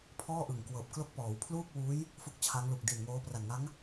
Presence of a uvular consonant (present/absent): absent